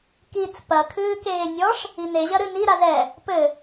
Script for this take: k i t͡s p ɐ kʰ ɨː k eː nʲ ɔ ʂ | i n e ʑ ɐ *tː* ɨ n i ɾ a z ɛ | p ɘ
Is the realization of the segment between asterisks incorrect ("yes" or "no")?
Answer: yes